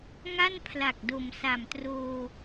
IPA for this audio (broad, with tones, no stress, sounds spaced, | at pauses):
ŋ a˥˩ n pʰ l a˨˩ k̚ d o˨˩ m s a˨˩ m t r oː˧